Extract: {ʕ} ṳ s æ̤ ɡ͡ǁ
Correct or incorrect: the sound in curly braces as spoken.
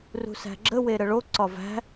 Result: incorrect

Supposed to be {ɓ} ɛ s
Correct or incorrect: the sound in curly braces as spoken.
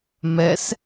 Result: incorrect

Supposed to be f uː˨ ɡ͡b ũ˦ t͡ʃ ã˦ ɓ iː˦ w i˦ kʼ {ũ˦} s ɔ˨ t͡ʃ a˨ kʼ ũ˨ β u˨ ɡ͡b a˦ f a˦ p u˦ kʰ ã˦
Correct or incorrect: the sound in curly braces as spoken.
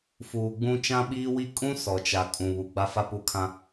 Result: correct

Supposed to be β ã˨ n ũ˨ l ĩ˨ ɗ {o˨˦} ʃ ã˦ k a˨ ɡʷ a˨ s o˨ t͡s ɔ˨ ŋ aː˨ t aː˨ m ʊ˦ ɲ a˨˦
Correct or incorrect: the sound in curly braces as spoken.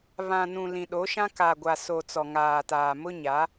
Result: correct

